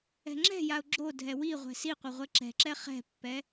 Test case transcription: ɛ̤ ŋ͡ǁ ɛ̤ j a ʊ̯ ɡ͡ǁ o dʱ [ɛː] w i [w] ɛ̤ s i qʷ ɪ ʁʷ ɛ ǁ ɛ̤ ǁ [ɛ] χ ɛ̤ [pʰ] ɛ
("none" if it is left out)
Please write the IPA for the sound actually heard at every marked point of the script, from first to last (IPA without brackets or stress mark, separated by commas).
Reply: ɛ, ʁʷ, ɛ, pː